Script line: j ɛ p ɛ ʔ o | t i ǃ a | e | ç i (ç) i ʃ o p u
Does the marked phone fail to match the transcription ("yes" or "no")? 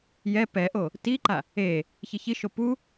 no